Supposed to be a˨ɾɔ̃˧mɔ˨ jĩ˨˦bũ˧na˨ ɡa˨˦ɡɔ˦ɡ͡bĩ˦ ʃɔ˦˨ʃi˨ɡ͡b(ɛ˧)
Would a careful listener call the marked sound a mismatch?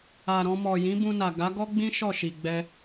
no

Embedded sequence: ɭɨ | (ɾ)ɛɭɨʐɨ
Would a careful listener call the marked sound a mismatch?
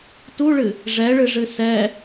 yes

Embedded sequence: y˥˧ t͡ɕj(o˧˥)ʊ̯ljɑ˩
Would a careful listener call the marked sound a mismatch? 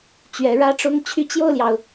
yes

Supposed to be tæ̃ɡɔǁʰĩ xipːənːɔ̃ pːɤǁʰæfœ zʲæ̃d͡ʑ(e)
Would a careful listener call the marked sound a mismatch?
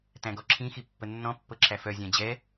yes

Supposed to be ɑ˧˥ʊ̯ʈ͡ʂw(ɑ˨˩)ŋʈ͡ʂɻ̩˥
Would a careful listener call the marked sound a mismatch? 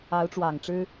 no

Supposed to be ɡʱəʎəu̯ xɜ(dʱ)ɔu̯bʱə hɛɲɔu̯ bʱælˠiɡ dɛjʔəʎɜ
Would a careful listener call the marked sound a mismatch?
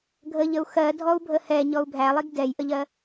no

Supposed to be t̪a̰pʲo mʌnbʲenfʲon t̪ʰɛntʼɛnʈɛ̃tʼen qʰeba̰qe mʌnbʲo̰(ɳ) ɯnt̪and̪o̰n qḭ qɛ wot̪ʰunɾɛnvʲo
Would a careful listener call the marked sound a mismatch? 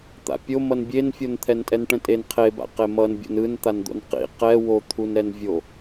yes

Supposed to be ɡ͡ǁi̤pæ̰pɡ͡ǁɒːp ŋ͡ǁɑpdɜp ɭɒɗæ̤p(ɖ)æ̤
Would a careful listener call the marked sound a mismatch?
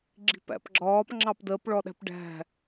no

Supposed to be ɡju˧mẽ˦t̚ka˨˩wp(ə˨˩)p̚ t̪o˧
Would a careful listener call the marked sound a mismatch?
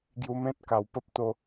yes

